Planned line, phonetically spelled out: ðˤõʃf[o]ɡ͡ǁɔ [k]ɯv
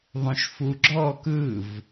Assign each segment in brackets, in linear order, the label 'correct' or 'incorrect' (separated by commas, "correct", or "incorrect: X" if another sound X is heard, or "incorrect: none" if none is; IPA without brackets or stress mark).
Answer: incorrect: u, correct